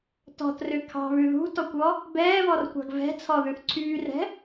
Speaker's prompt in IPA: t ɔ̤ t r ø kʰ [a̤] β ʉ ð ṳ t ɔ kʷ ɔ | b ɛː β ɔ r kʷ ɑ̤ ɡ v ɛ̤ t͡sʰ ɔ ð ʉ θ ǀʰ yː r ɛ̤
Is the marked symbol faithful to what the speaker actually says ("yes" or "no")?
no